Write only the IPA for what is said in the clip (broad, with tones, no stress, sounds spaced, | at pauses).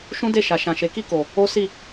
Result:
ʃ ũ˦ d e˦˨ ʃ a˨ ʃ ã˨ ʃ e˨˦ k i˦˨ k o˨ | o˦ s i˦˨